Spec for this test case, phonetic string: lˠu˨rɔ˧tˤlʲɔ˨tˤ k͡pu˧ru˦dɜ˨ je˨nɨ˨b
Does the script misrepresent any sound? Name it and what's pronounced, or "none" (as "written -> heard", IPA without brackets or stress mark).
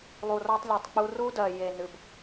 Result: none